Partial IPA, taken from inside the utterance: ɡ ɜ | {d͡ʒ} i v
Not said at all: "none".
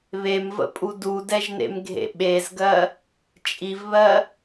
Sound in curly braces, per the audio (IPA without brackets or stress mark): t͡ʃʼ